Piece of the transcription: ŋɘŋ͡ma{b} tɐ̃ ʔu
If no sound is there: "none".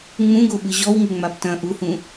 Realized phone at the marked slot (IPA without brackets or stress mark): b